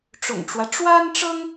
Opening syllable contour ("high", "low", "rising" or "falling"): low